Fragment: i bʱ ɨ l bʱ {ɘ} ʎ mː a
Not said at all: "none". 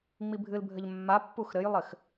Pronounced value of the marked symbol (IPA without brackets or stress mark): ɘ